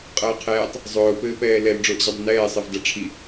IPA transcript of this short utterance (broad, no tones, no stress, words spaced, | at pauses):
qʼʌːqʰɛːtˤ | zˤʊː pɘːpɛːlɛl ɖ͡ʐʊːʔʑɘdˤʊnɛː sˤɘvdʌʈ͡ʂʰi